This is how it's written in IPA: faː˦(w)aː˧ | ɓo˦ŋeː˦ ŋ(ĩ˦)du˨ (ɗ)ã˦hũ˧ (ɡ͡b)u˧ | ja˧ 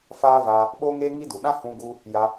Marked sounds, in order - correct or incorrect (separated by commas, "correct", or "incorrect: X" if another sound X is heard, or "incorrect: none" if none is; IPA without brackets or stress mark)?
incorrect: v, incorrect: i˦, correct, incorrect: ɡ